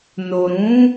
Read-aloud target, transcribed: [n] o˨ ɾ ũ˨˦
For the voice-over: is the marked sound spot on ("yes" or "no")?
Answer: yes